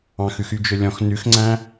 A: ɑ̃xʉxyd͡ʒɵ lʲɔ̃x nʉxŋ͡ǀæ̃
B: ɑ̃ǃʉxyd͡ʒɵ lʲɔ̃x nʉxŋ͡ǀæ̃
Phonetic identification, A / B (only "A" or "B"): A